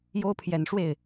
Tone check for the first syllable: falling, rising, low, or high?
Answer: high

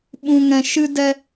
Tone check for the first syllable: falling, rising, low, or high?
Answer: low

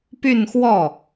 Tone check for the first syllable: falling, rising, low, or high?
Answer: falling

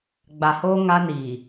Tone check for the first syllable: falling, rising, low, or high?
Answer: low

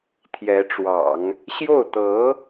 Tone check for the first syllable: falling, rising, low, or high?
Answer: rising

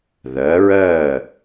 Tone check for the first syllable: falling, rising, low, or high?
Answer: rising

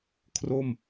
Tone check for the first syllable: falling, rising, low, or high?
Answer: falling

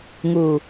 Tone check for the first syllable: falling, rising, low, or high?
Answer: low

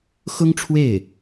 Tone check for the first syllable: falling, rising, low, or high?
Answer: high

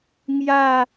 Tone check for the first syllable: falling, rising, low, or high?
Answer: falling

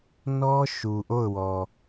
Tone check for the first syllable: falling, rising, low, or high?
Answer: high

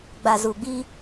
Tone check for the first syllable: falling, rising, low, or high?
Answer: low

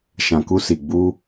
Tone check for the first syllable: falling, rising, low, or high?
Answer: low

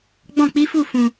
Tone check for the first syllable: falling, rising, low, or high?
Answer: falling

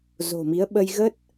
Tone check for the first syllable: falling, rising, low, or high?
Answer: low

